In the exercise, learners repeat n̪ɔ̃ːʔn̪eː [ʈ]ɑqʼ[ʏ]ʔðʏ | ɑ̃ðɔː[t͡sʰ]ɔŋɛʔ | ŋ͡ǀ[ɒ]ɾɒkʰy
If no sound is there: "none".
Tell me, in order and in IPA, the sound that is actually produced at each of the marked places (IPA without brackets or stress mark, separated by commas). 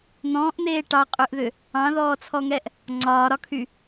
ʈ, ʏ, t͡sʰ, ɒː